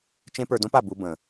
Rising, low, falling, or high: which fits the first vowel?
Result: high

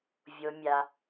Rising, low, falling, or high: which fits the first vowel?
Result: low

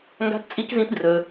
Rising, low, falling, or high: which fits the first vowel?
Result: high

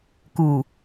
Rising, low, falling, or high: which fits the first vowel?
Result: low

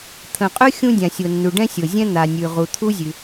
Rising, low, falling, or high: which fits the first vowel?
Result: low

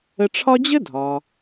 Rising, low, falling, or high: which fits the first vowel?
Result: low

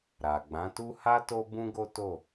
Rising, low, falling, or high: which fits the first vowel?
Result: low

